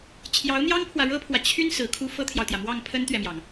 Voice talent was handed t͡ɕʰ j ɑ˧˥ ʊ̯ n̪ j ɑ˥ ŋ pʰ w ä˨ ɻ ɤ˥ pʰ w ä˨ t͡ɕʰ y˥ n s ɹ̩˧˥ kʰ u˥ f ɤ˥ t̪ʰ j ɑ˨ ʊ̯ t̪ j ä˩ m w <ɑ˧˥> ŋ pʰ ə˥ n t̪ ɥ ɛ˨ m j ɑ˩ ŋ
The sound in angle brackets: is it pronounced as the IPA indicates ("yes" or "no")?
no